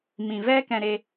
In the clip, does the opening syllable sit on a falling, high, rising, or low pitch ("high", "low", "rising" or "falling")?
low